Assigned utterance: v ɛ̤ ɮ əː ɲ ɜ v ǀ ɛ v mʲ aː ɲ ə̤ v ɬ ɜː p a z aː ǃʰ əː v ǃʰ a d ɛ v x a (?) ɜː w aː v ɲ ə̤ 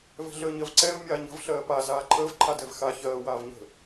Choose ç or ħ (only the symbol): ç